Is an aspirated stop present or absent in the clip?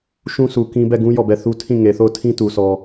present